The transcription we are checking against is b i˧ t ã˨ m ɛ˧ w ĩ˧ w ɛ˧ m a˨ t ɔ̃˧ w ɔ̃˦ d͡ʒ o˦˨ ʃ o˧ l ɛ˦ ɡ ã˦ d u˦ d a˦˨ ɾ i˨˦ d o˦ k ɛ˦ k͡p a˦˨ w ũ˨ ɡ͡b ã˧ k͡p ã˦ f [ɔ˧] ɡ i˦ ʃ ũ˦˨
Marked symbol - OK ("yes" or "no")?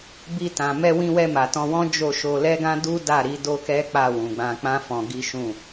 no